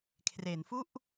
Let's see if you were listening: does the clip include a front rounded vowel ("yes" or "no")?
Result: no